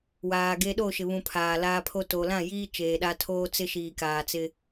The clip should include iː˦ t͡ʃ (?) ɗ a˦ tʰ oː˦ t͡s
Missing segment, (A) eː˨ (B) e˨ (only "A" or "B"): A